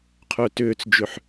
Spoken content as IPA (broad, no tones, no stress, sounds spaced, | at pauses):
qʰ œ t ʏː t͡s d͡ʒ ʏ ħ